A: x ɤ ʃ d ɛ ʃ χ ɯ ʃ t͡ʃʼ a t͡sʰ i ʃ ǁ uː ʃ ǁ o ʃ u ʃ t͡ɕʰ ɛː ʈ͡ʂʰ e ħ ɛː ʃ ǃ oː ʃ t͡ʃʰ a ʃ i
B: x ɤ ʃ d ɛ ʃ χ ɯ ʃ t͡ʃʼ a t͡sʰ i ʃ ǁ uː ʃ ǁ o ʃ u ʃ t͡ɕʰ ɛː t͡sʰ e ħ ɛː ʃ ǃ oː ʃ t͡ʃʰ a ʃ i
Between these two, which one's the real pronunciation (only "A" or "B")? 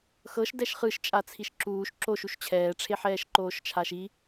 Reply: A